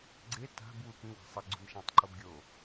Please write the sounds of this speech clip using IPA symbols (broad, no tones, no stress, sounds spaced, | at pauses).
ɡ͡ǀ e t a̤ b w u k ĩ w a̤ sˤ ɪ ɡ͡ǀ ṳ n ʃ ã tˤ ǃ o b ɡʲ o